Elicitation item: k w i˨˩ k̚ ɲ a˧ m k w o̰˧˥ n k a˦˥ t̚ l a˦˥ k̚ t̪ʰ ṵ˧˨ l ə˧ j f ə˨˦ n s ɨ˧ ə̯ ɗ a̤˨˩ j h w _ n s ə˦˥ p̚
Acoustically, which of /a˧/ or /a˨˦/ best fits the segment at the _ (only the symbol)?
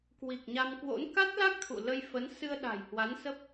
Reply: a˨˦